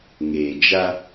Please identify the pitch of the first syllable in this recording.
low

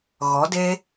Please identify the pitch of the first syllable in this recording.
rising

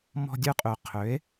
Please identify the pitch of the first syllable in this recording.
high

